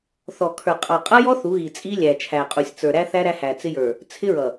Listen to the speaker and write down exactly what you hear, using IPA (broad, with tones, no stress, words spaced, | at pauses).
θɔ˨kʰə˞˨ qʼɑ˨qʼʌ˦jɔ˦ θu˨˦ɣi˨t͡sʼi˦lʲæ˨ t͡ʃʰæ˨ qʼu˨sʲt͡sə˞˨ɾæ˦θæ˦ ɾæ˦hæ˨t͡sɪ˦jə˞˨ | t͡sʰɪ˦ɹʌ˨